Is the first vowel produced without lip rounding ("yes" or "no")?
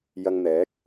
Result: yes